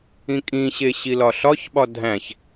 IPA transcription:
ĩ kʼ ĩ ɕ e ɕ i l ɒ ɬ ɒ ç ɓ ɒ dʱ æ̃ ç

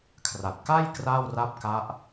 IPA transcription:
kʰ r a˨˩ t̚ k a˥˩ j k r aː˥˩ w r a˥˩ p̚ k a˦˥ ʔ

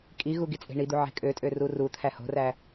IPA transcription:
kʼ i ɣ u ɡ i t͡sʼ e̤ ɳ i d̪ u ʕ e̤ kʼ ø tʼ ø r u r u t̪ʰ æ h o̤ r æ

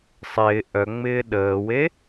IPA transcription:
sˤ ɪː ʔ œ ŋ͡m ɪː ɗ əː w e

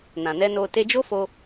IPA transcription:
n ã˨ n ɛ˧ n o˧ t e˧ d͡ʒ o˦ f o˧

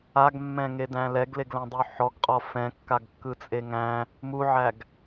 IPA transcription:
a ɡ mː ɛ̃ ŋ e d æ̃ l ɛ ɡ l e ɡ l æ̃ dˤ y ħ ɔ ɡ qʼ ɔ f ɛ̃ kː a ɡ kː ɯ t͡sʼ e ŋ æ̃ | m u ʕ æ ɡ

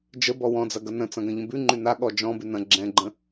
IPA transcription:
d͡ʒ ə b ɔ w ɔ̃ d͡z ɐ ɡ ɐ n ə̃ t͡s ɐ̃ ɡ ɐ̃ ʎ ə̃ b ʉ ŋ͡ǃ ʉ n a ɠ ɔ d͡ʒ ɔ̃ b ʉ n ɐ̃ ɡ͡ǁ ɛ̃ ɡ͡ǃ ə̃

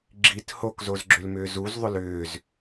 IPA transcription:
ɡ͡ǁ i t h o k z o z ɡ͡ǁ ʏ l m ʏː z u z ðˤ ʏ l ʏː z

